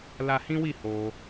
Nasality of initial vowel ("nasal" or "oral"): oral